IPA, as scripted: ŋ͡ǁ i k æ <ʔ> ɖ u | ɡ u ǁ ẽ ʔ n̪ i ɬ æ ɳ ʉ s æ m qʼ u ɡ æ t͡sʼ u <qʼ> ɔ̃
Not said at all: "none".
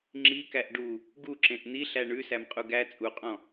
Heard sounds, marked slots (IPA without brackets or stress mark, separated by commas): ʔ, qʼ